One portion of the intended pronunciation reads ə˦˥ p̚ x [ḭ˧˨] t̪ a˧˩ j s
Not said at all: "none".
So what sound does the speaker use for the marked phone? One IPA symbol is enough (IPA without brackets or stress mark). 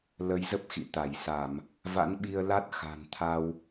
ḭ˧˨